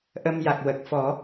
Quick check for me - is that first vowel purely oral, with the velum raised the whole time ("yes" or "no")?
yes